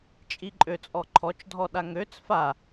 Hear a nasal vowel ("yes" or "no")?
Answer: no